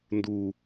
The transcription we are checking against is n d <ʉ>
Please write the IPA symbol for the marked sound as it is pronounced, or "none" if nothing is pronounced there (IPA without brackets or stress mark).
u